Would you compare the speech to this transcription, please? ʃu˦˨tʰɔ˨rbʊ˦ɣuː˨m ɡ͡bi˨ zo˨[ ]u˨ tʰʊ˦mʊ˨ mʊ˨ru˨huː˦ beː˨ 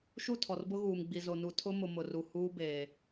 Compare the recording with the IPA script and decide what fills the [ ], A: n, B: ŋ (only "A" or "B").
A